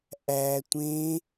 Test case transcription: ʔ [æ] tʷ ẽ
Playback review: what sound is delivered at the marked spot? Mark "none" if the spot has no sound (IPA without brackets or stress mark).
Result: æ